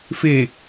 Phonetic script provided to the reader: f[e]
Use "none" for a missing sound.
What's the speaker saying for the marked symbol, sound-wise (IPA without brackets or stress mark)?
e